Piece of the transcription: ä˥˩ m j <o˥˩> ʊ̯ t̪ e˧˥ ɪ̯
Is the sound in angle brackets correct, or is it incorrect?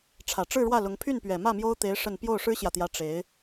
incorrect